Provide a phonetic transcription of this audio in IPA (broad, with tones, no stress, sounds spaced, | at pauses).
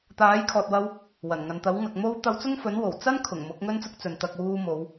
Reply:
t̪ aː˨˥ j kʰ ɔː˨ t̚ w ɐ˧ w | w ɐ˨˩ n ŋ ɐ˨ n t̪ ɐ˨˥ w ŋ ɐ˨ k̚ m o˥ w t̪ ɐ˧ w t͡s ʊ˥ ŋ f ɵ˨˥ n w o˨˩ w t͡s ɐ˥ n kʰ ʊ˨˩ ŋ m ʊ˨˥ k̚ ŋ ɵ˥ n t͡s ʊ˥ k̚ t͡s ɵ˨˧ n t̪ ɐ˧ k̚ w uː˧ m o˨˧ w